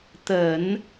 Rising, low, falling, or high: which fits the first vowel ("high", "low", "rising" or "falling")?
low